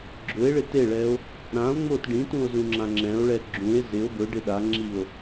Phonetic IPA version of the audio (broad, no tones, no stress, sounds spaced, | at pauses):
ɡ͡ǁ ʊ e̯ ɭ ɪ t e ɭ ɛ o̯ | ɾ ã o̯ ŋ͡m o t ɖ ĩ t ũ o̯ z ũ ŋ͡ǁ ã ŋ͡ǁ ɛ̃ o̯ ɭ ɛ ɡ͡ǁ ũ e̯ z ɪ o̯ b ʊ ɖ ɪ ɗ a ŋ͡ǁ i o̯